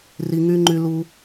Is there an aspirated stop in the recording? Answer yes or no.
no